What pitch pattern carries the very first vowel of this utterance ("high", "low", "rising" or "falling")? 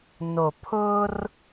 low